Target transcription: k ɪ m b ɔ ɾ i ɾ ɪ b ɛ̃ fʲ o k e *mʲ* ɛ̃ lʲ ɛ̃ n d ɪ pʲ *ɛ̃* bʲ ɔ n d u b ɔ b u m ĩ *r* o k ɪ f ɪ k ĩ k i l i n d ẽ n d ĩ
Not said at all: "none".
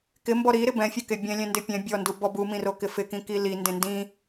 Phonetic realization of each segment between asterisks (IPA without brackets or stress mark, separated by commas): bʲ, ɛ̃, r